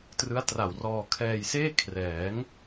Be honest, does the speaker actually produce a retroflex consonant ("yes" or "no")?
no